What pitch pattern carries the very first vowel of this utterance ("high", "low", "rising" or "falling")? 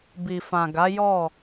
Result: low